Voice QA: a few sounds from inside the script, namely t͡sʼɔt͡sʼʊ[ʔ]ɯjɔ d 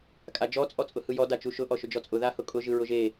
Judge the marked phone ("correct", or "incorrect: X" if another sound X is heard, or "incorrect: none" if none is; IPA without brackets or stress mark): incorrect: h